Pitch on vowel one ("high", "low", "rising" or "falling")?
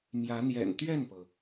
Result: rising